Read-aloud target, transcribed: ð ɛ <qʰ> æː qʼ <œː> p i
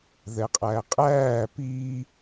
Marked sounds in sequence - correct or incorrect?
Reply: incorrect, incorrect

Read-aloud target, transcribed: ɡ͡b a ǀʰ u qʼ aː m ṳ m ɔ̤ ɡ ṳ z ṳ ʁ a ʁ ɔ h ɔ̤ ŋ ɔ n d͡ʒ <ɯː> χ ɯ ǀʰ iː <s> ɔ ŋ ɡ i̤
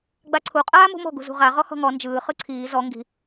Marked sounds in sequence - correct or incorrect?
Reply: correct, incorrect

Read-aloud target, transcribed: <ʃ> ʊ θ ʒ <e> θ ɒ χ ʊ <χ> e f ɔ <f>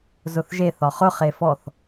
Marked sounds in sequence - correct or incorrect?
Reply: incorrect, correct, correct, incorrect

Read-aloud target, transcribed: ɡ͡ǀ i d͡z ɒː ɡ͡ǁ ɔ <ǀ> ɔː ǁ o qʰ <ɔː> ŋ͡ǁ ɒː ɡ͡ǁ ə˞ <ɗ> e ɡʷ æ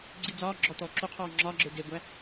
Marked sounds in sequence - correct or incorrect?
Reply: incorrect, correct, incorrect

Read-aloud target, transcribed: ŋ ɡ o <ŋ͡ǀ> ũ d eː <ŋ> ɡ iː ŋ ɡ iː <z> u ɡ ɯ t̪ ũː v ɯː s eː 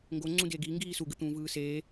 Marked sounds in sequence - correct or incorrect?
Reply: correct, incorrect, incorrect

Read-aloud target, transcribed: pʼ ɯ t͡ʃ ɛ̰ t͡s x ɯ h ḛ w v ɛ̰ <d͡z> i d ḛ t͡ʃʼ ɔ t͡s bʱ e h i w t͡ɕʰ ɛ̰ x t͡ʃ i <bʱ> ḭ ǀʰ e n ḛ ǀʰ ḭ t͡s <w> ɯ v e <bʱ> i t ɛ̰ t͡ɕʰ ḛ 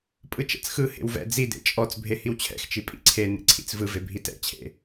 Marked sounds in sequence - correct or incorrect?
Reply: correct, incorrect, incorrect, correct

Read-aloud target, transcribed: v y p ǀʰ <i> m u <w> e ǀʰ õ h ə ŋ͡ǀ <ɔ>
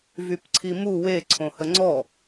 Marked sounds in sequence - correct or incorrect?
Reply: correct, correct, correct

